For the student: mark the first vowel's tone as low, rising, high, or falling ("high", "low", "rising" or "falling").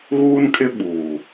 high